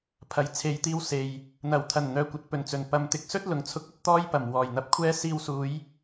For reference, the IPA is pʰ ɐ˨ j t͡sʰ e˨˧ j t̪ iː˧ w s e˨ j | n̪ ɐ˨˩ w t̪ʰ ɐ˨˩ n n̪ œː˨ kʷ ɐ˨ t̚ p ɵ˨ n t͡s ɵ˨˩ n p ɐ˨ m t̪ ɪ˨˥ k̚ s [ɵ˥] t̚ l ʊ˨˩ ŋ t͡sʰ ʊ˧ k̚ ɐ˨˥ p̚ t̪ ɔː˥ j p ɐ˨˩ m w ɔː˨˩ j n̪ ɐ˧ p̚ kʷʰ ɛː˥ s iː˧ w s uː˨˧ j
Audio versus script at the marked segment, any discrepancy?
no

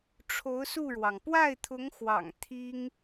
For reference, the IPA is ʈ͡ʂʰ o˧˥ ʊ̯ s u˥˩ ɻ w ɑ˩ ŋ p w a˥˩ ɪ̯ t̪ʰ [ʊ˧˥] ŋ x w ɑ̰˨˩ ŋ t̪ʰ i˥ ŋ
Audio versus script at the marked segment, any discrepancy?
no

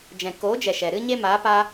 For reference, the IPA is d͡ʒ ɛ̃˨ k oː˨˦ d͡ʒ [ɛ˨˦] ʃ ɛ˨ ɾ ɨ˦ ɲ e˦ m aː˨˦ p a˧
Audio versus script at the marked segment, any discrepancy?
yes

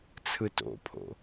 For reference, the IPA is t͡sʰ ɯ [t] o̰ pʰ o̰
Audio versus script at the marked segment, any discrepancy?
no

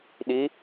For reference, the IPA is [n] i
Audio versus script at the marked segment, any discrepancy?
yes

